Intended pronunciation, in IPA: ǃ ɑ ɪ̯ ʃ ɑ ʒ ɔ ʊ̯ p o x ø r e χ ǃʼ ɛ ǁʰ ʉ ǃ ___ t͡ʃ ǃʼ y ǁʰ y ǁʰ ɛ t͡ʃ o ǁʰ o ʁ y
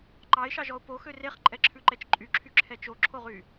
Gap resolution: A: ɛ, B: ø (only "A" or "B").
A